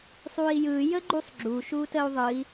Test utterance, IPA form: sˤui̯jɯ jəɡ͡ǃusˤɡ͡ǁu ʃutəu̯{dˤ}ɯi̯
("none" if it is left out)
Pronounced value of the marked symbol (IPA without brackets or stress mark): ðˤ